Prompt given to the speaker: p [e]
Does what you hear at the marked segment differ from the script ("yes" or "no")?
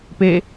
no